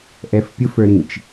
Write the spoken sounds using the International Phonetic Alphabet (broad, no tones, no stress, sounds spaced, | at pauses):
ʔ ɛ f pʲ ʊ f ə˞ ɾ ĩ t͡ʃ